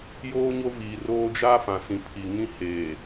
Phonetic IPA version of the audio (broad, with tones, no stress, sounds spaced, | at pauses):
j oː˦ ɲ o˦ v iː˨ r oː˦ d͡ʒ a˦ f ã˨ s ĩ˨ pʰ i˨ ŋ ĩ˦ h eː˨